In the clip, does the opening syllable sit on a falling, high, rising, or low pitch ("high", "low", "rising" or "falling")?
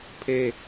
high